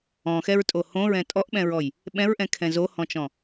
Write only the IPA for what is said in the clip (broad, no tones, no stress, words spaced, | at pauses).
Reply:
ɔ̃xɛɹtʼo hõɹɛ̃ tʼɔʔɓɛ̃ɹɔj | ɓɛ̃ɹʔɛ̃kʰɛ̃ zohɔ̃t͡ʃɔ̃